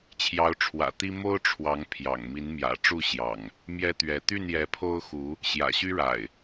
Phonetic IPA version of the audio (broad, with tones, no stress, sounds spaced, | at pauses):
t͡ɕʰ j ɑ˨˦ ʊ̯ ʈ͡ʂʰ w ä̰˨˩ t̪ i˦ m o˦ ʊ̯ ʈ͡ʂʰ w ɑ˨˦ ŋ pʰ j ɑ̰˨˩ ŋ m i˨˦ n m j ä̰˨˩ ʈ͡ʂ u˥˨ ɕ j ɑ̰˨˩ ŋ | m j ɛ˦ t̪ ɥ ɛ˨˦ t̪ y˥˨ n j ɛ˨˦ pʰ o˦ ʊ̯ x u˨˦ | ɕ j ä̰˨˩ ɕ y˦ ɻ a̰˨˩ ɪ̯